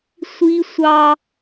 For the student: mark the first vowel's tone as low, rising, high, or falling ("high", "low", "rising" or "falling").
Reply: high